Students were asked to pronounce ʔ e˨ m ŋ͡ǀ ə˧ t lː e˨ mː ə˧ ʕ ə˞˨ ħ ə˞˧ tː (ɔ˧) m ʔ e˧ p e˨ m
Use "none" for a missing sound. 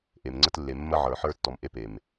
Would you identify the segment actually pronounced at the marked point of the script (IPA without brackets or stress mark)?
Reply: ɔ˨